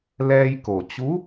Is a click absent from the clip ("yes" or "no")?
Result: yes